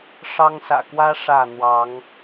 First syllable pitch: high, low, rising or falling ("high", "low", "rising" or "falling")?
high